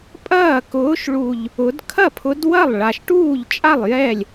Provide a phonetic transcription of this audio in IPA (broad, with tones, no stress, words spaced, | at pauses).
pʼɐː˥˩ kʊː˨˦ʃ ɭu˨˩ʎ | ʊ˨˦d kʰɐ˥˩pʰʊ˨˦d wɐ˥˩lˠɭa˨˩ʃʈuː˥˩ʎt͡ʃʼa˥˩lˠ jɛ˥˩lʲ